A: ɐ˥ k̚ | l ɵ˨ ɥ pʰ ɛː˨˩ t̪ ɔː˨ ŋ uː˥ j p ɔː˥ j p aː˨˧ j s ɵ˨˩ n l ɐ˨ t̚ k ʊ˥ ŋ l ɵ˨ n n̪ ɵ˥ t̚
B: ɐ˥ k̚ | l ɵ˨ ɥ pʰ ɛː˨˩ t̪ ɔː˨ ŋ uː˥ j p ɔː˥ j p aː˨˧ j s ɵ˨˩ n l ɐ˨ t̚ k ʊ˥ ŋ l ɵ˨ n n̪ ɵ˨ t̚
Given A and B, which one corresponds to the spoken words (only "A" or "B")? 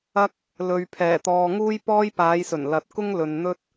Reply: A